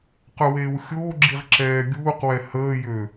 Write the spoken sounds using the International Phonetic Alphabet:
q œ w eː w xʲ oː ɡ͡ǁ i ʁ ǁ ɛː ɡʲ uː q w ɛ h əː j ø

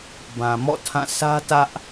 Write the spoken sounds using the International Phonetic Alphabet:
b ã˨ m ɔ̰˦˨ tʰ ã˦˨ s ä˦ t ä˦ ʔ

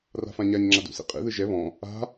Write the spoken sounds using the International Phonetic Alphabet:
r a̤ f ã ɲ a ɲ ŋ͡ǁ a d ṵ s ḭ qʼ ḭ ð ɯ ʒ ɛ β ɔ̃ | a̤

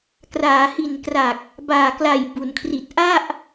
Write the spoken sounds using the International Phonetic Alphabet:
k r aː˩˦ h i˨˩ n k r a˨˩ k̚ | b aː˨˩ k l a˨˩ j b u˩˦ n kʰ r i˨˩ t̚ ʔ a˥˩ ʔ

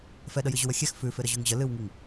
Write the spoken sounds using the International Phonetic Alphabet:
f ɛ ɗ ə j ɨ ʑ ʉ w ə xʲ ɛ x f ʉ f ɪ ɾ ə ʑ ʉ ŋ ʑ ə l ɨ w ŋ i ŋ

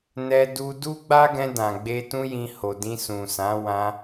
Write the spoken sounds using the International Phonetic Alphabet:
n ɛ˧ d u˧ d u˦ ɡ͡b a˦ ɡ ɛ̃˧ d ã˨ ɡ͡b e˧ t ũ˦ j ĩ˧ h o˨ d ĩ˧ s ũ˨ s ã˨˦ w ã˧

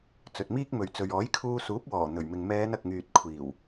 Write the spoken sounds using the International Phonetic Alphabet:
t͡s ɵ˨ t̚ m iː˥ k̚ m ɵ˨ ɥ t͡s ɵ˨ ɥ ɔː˨˥ j kʰ uː˧ s uː˨˥ p̚ w ɔː˨˩ n̪ ɵ˨˩ ɥ m ɪ˨ ŋ m ɛː˨˧ n ɐ˨ k̚ ŋ yː˨ t̚ kʷʰ iː˨˩ w

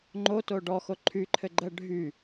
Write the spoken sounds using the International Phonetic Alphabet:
ŋ͡ǃ o t o ɖ ɔ x o ǃʰ y ǃʰ ɘ ɡ͡ǃ ɜ ɖʱ y

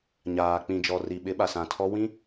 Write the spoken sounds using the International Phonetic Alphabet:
ɲ aː˨ k͡p ĩ˨ d͡ʒ ɔ˨ r i˨ ɓ ɪ˨˦ ɓ a˨ s ã˨ tʰ ɔ˦ w ĩ˦

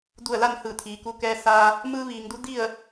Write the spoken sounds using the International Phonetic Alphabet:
d u˧˩ ə̯ l a˥˨ n h ɯː˧˩ t̪ʰ iː˩ k u˧ k ɛː˧ s aː˧ | m ɯː˧ ʋ iː˩˧ ŋ d u˧˥ d i˥˨ ə̯

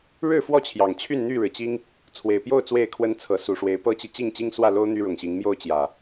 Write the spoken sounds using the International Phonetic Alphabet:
ɻ ɻ̩˥˨ f w ɔ˥˨ t͡ɕʰ j ɑ˨˩ ŋ t͡ɕʰ y˥˨ n n̪ y˥˨ ɻ ɻ̩˩ t͡ɕ i˦ ŋ | t͡sʰ w e˨˩ ɪ̯ p j o˥˨ ʊ̯ t͡s w e˥˨ ɪ̯ kʰ w ə˦ n t͡sʰ ɤ˨˦ s u˨˩ ʂ w e˨˦ ɪ̯ p ɤ˦ t͡ɕ i˨ t͡ɕ i˥˨ ŋ t͡ɕ i˦ ŋ s w ä˥˨ l o˦ ʊ̯ n̪ y˦ ɻ ʊ˨˩ ŋ ɕ i˨˦ ŋ m j o˥˨ ʊ̯ t͡ɕ j ä˨˩

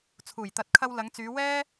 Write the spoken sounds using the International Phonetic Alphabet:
t͡sʰ uː˨˩ j t̪ ɐ˨˥ t̚ kʰ ɐ˧ w l ɐ˨˧ ŋ t͡s yː˨˧ w ɛː˥

